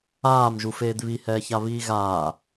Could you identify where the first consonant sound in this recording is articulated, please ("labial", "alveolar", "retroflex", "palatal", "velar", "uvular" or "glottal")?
labial